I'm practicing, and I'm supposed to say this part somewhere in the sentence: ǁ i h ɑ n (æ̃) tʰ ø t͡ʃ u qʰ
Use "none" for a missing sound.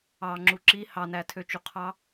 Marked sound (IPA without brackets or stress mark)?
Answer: æ